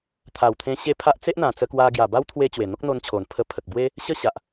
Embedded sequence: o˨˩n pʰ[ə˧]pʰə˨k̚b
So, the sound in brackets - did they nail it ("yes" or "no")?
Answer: yes